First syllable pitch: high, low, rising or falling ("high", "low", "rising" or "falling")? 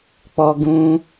high